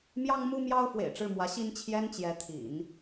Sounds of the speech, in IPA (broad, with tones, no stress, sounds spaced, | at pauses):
m j ɑ˥ ŋ m u˥ m j ɑ˥ ʊ̯ f w ḛ˨˩ ɪ̯ ʈ͡ʂ ɻ̩˥˩ m w ä˧˥ ɕ i˥ n t͡ɕʰ j ɛ˥ n t͡ɕ j ɛ˧˥ t̪ʰ ḭ˨˩˦ n